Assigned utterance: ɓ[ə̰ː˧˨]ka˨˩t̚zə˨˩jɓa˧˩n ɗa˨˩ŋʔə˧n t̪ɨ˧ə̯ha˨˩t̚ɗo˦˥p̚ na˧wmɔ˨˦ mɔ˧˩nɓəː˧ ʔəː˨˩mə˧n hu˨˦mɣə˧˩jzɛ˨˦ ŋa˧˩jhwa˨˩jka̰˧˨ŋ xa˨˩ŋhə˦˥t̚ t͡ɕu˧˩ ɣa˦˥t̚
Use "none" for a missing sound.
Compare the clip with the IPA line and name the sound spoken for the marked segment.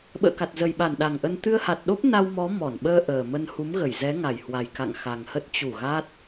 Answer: ə̰ː˧˨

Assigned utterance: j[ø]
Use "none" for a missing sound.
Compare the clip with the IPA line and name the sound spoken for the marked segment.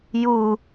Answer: u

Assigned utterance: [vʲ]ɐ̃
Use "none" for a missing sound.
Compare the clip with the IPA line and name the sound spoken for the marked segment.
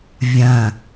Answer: vʲ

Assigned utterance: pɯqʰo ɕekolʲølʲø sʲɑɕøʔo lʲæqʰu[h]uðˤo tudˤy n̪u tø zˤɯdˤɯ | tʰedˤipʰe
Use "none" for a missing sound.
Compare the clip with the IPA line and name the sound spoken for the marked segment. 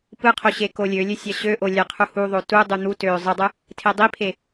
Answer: h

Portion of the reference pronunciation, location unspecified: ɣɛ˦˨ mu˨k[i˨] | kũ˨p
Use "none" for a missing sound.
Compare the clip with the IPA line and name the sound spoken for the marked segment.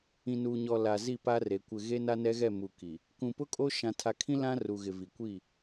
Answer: i˨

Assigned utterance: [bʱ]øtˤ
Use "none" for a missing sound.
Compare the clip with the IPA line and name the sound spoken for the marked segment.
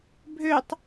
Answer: bʱ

